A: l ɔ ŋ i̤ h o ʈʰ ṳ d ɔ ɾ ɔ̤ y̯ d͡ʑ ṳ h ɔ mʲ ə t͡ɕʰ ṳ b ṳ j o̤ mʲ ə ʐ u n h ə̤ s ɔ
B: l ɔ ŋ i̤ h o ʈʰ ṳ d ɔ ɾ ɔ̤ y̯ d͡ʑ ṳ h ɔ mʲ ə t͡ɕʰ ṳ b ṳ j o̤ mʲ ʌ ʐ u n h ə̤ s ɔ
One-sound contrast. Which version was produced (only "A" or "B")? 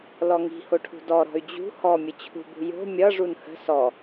B